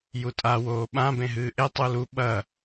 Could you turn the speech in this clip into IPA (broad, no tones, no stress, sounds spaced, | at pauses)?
j u tʼ a w oː ɓ ã b ẽ ɦ ɨː ʔ e tˤ u l u ɓ ɐ